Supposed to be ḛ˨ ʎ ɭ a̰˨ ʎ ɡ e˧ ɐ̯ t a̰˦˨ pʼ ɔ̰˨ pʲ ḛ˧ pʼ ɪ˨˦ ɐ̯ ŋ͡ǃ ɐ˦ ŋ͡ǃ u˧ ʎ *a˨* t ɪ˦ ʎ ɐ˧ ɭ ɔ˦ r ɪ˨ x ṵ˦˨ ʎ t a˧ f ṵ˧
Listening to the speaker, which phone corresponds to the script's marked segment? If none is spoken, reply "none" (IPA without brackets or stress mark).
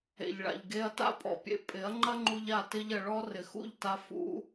a˦˨